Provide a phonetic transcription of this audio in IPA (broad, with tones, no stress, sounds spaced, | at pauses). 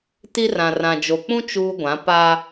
t i˦ r ã˨ r ã˨ d͡ʒ o˨ k͡p ũ˦ t͡ʃ uː˦ ɡʷ ã˨˦ p a˦